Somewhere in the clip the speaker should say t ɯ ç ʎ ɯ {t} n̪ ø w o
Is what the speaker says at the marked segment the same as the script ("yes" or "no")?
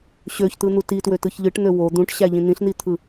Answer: no